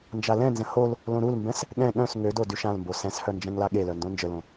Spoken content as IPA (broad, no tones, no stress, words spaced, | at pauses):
nd͡ʒalɛ̃nzə̃ hol | lõɾulmbɛ̃s | ɠɛ̃ ɠœ̃s ŋødo dyʃãlmbo sɛ̃shœ nd͡ʒɛ̃ŋlaɠelœ ndõnd͡ʒəlõ